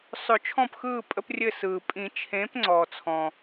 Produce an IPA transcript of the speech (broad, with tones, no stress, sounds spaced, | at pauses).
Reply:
sˤ ɵ˨˩˦ t͡ʃʰ ɔ̃˦˨ p x ɯː˦˨ pʼ ə˦ p rʲ ɘ˦˨ s ɯː˩ pʼ ĩ˨˩˦ t͡ʃʰ ẽː˨˥ p ŋ͡ǀ ɔː˩ t͡sʰ ɔ̃˩